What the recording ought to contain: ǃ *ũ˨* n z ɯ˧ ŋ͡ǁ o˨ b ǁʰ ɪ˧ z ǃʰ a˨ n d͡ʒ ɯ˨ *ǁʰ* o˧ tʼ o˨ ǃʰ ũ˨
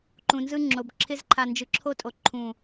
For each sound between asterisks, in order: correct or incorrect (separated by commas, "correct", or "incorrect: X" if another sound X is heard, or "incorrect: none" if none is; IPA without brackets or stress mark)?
correct, correct